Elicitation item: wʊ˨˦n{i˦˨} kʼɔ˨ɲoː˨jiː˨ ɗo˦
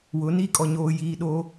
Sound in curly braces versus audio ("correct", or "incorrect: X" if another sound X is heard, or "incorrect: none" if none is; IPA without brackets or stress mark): correct